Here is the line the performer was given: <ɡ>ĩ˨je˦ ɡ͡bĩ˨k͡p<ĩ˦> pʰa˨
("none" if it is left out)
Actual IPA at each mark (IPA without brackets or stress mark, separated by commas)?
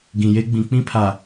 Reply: ɡ, ĩ˦